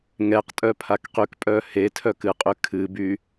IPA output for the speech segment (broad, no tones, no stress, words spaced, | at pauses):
ŋɛqtʼœ pʰakqykpʼœ hetʰœ kɨqʼy kʰɨby